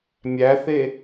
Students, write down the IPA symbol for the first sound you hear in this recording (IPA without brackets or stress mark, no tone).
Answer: mʲ